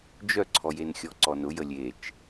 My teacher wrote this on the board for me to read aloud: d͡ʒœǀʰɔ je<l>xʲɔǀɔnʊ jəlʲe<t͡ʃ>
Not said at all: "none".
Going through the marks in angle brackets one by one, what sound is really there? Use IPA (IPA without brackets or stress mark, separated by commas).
n, t͡ʃ